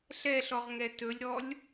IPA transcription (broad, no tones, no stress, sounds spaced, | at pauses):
ɬ ɛ ɬ ɔ ʁ ŋ ɛ t ɵ lʲ ɾ ɔ lʲ